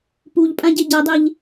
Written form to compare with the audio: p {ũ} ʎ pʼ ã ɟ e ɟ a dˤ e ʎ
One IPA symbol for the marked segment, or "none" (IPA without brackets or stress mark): u